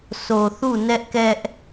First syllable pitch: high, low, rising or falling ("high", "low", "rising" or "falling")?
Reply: low